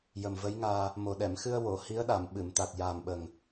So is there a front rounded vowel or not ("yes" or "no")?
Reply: no